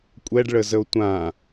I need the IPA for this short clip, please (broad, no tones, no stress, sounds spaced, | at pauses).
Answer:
kʷʼ ɛ ɖ ɭ ə z ə o̯ tʷ ã